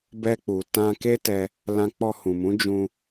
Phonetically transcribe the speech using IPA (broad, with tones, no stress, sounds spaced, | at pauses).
b ɛ˧ k͡p u˨ t ã˧ k e˦ t ɛ˧ | l ã˧ k͡p ɔ˧ h ũ˨ m ũ˨˦ d͡ʒ ũ˧